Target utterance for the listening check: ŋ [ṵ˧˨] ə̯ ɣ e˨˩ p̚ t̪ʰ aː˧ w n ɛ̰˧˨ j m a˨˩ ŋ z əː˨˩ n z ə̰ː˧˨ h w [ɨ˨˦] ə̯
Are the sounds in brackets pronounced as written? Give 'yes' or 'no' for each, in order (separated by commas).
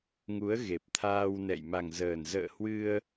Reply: no, no